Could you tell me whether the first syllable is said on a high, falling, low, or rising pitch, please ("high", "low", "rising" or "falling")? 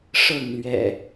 falling